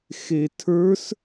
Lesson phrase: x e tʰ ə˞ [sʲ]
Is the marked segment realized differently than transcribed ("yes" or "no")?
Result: yes